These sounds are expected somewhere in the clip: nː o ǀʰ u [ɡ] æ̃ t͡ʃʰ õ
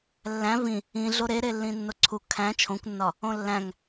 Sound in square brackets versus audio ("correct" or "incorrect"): incorrect